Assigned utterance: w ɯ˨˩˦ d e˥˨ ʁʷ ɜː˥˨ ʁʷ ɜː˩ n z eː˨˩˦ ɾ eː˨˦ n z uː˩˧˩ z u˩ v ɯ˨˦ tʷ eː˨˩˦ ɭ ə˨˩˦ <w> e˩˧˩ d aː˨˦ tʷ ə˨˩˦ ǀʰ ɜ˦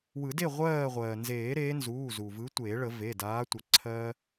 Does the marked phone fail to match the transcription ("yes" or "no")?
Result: yes